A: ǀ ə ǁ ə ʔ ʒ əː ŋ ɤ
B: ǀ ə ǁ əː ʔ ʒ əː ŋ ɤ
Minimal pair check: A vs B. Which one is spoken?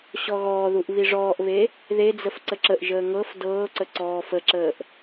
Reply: A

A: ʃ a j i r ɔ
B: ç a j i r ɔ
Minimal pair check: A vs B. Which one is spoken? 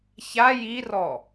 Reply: B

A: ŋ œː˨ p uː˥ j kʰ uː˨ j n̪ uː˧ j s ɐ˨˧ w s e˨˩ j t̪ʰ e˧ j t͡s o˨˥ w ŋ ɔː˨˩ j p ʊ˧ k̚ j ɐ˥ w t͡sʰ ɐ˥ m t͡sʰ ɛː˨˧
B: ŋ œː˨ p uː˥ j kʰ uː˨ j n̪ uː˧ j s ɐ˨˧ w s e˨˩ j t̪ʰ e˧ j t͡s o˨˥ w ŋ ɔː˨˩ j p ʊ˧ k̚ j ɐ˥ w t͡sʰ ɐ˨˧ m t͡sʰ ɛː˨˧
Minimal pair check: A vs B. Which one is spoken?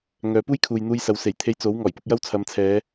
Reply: B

